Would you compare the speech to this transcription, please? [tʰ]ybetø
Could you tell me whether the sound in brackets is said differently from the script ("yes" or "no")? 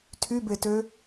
no